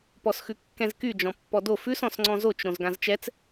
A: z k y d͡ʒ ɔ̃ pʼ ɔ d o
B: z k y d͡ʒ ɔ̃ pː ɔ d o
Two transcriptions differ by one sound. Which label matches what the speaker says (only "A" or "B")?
B